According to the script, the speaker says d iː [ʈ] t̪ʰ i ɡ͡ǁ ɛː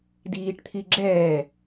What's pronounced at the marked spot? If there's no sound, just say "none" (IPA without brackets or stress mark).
ʈ